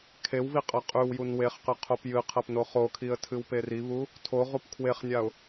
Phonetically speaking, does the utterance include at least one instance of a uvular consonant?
yes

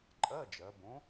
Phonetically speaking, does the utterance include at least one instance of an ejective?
yes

